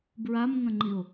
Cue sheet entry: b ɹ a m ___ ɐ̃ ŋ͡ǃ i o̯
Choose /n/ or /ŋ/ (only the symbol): ŋ